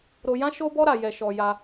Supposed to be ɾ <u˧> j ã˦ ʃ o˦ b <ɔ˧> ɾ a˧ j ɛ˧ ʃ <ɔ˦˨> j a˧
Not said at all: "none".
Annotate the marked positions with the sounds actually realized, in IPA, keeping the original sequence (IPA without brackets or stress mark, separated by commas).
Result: o˧, ɔ˦, ɔ˧